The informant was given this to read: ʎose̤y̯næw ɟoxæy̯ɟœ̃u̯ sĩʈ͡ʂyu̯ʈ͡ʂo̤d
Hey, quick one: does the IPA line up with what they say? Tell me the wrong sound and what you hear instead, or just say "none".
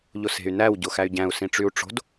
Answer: œ̃ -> æ̃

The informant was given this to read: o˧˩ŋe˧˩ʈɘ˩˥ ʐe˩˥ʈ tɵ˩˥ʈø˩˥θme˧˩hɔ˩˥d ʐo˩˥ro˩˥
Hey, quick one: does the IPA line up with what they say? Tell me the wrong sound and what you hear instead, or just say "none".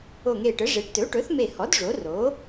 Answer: ø˩˥ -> ɵ˩˥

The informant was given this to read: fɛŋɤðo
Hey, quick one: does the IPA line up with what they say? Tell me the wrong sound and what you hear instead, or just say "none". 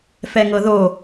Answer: none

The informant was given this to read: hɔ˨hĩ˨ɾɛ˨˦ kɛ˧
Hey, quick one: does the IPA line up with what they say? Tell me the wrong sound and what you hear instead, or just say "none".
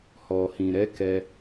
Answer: none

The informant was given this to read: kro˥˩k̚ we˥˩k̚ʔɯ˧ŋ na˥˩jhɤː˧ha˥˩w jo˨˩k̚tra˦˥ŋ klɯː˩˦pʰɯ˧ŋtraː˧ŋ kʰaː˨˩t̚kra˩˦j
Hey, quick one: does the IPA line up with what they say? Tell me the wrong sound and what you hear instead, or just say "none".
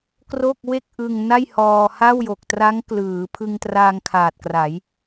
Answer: ɤː˧ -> ɔː˧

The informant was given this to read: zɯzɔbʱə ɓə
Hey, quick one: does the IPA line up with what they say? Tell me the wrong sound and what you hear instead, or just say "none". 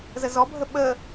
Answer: ɯ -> ə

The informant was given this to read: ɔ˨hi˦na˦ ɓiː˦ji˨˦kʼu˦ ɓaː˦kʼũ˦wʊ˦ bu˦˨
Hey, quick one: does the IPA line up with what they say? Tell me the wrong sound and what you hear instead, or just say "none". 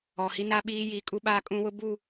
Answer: none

